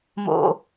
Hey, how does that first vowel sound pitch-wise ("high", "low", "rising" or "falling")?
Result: high